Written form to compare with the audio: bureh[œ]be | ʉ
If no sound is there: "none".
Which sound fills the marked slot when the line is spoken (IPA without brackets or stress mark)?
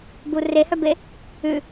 œ